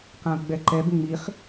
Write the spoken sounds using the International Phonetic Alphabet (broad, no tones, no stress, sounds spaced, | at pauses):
q ã ʊ̯ ɡ͡b ɛ ǃ ɛ b ŋ͡m i χ